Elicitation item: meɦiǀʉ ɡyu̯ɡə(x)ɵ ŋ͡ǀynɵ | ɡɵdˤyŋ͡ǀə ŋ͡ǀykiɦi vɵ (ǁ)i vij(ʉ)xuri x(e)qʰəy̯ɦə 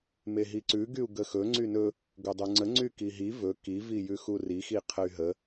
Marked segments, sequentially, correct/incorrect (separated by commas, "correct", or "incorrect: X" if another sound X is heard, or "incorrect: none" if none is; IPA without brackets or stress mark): correct, incorrect: k, correct, incorrect: i